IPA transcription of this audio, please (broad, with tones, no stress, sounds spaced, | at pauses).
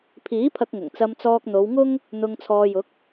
pʰ iː˨˥ pʰ ɐ˧ k̚ ŋ ʊ˨˩ ŋ t͡s ɐ˧ m t͡s ɔː˧ k̚ n̪ o˨˧ w ŋ ʊ˥ ŋ | n̪ ʊ˧ ŋ t͡sʰ ɔː˧ j ʊ˨˥ k̚